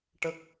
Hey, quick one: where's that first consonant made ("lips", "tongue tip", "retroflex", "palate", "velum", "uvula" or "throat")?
retroflex